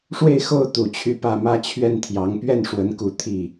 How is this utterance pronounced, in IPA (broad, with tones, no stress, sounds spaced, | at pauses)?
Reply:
ʂ w e˥˧ ɪ̯ x o˥˩ ʊ̯ t̪ u˨˩ t͡ɕʰ y˥˧ p ä˥˧ m ä˥˧ t͡ɕʰ ɥ ɛ˥˩ n t̪ʰ j ɑ˧˥ ŋ p ɥ ɛ˥˩ n ʂ w ə˧˥ n k u˨˩ t̪ʰ i˥˩